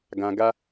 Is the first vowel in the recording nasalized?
yes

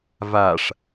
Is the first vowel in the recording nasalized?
no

